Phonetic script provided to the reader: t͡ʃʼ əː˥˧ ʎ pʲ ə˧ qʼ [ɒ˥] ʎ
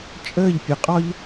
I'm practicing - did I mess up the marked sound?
no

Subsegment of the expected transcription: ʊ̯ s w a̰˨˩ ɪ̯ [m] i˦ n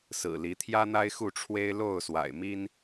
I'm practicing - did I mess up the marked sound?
no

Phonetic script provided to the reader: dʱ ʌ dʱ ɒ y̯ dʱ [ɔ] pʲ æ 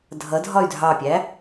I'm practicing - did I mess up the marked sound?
yes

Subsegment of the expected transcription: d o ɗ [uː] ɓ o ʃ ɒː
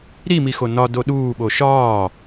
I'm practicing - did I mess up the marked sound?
no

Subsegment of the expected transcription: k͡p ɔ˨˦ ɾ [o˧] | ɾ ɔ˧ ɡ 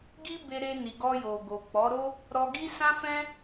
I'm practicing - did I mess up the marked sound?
yes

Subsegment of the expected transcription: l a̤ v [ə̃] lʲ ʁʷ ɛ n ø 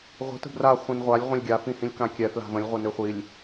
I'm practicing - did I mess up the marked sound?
no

